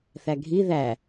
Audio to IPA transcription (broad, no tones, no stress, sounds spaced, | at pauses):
θ æ ɡʱ i ð æ